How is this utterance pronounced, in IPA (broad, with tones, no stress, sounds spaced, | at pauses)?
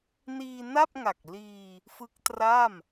n iː˧ n a˥˩ p̚ ŋ a˨˩ k̚ l iː˧ | f ɯ˦˥ k̚ t r a˥˩ m